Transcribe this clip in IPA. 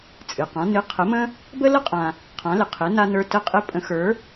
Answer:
t͡sʼ ɨ˩ q ã˩˧ n ɨ˩˧ qʰ ə˩˧ m ə̃˧ | b ə˥ l ə˥ qʼ ã˩ | qʰ ã˩˧ l ɪ˩ qʰ ɪ˩˧ n a˧ n ə˞˧ t ə˧ qʼ ɪ˧˥ pʼ ə̃˩˧ x ə˞˩˧

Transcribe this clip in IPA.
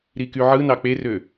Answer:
ɾ i k y ʕ ɯ n ɑ k͡p e r ø

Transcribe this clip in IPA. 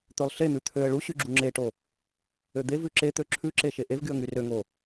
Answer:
t̪ ø lˠ ɬ e n̪ ʉ t̪ʰ ø ə̯ ɭ u ɕ y ɡ͡ǁ u ŋ͡ǁ e ʈ o | ø d̪ e v ʉ ǁ e t̪ ø ǁʰ ʉ ǁ e ʃ e ʔ e v ɡ y ə̯ ŋ y r ø ŋ o

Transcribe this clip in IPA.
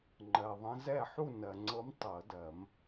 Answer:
ŋ͡ǃ ɜ˨ ðˤ ə̃˧˥ z ɛ˥˨ ħ u˥˨ n ɜ˨ ŋ͡ǀ ɤ˧˥ m tˤ ɤ˨˩˦ d ɜ˨˩˦ m

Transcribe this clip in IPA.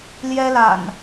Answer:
l j ɛ˦ l a̰˨˩ n

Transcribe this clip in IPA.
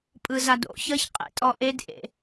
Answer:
pʼ ɯ z a d o̰ ç ʌ ç qʼ ḛ tʼ ɔ ʔ e d ʔ ḛ

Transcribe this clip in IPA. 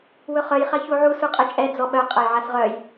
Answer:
w ɵ χ œ j χ ɐ ç u ʕ u s u qʼ ɛ t͡ʃʼ ɛ d͡z ɔ ɓ œ qʼ ɐ j ʕ a s ʁ œ j

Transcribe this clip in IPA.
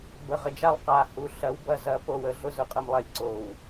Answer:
b ə˨ ʁ ə˨ d͡ʒ a˦ lˠ q a˨ h u˨ ɬ ɐ˨˦ w b ɐ˨ z ɐ˨˦ p o˨ w ə˨ ɮ ʊ˦ z ʊ˨ qʼ ə˨ m lˠ ɐ˨˦ lʲ ǀ o˨ w

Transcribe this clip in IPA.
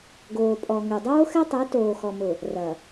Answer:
ɡ oː˨ pʼ ɔ˨ ŋ ø˨ dˤ oː˦ x ɛ˦ tˤ ɛ˨˦ t oː˨ x ɔ˨ m ʊ˨ | r ɐ˨

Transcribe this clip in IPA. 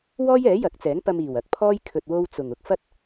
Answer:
w ɔː˥ j ɛː˨˥ j ɐ˨˥ k̚ t͡s ɛː˨˥ ŋ p ɐ˧ m iː˨˩ w ɐ˨ k̚ pʰ ɔː˥ j kʰ ɵ˧ t̚ w o˥ w t͡s ʊ˨˩ ŋ ʊ˧ k̚ f ɐ˥ t̚

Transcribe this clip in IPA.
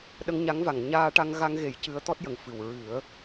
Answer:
ɗ ə˧ ŋ ɲ a˧˥ ŋ v a˨˩˨ ŋ ɲ aː˧ ʈ a˧ ŋ ɣ a˧ ŋ ɣ e˨˩˦ j c ɨ˧˥ ə̯ t̪ ɔ˦˥ t̚ j ə˨˩ ŋ f ɨ˨˩ w ɹ ɨ˨˩˦ ə̯

